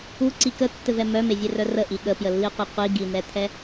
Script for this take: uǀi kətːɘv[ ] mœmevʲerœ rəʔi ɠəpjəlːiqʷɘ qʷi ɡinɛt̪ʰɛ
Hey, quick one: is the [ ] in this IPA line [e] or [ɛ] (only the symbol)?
ɛ